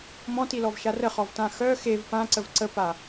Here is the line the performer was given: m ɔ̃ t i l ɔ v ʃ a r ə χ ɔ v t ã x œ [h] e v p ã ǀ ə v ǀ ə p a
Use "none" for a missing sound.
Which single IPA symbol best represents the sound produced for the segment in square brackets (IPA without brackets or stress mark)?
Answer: x